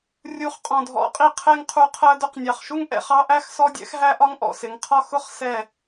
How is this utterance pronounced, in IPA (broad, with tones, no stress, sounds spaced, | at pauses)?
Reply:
rʲ u˨˦ χ qʼ ɔ̃˨ dʱ ɔ̰˨˦ qʼ i˧ qʰ ɛ˦ ŋ qʰ u˧ qʰ ɜ˧ d ʊ˧ q nʲ ɑ˨ χ ʃ u˦ ŋ ʔ ɛ̰˨ χ ɑ˦ ʔ æ˦ x s ɔ˦ dʲ ɛ̰˦ x ɦ æ˦ ʔ ɒ˦ ŋ ʔ ɔ̰˨ s ɪ˨˦ ŋ qʰ ɒ˦ x ʊ˦ χ s ɛ˦˨